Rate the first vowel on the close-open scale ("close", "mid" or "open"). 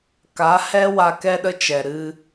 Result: open